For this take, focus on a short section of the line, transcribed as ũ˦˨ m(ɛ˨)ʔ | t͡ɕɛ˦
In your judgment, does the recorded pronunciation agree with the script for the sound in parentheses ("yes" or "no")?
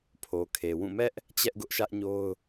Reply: no